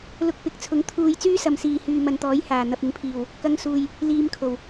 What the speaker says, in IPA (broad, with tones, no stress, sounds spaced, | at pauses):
l ʊ˧ k̚ p ɪ˨˥ k̚ t͡sʰ ʊ˨˥ ŋ t̪ʰ uː˧ j t͡s yː˥ s ɐ˨ m s iː˨ h yː˨ m ɐ˨ n t̪ ɔː˨˥ j h aː˨˩ n̪ ɐ˨ p̚ ɪ˨˥ ŋ pʰ iː˨˩ w | k ɐ˧ ŋ s uː˨ j | l iː˧ m kʰ o˨˩ w